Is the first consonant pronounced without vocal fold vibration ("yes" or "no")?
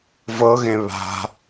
no